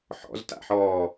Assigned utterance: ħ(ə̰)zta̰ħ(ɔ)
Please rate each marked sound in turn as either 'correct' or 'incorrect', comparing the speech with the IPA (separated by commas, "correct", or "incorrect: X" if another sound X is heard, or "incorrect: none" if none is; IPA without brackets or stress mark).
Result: incorrect: ɔ̰, incorrect: ɔː